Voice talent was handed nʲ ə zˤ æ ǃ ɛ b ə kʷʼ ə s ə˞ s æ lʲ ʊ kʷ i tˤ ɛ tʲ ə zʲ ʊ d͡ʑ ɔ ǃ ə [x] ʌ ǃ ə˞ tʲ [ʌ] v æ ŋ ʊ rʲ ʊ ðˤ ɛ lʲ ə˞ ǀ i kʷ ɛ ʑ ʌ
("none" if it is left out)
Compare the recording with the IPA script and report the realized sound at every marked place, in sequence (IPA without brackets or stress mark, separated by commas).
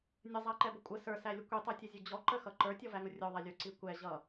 x, ɔ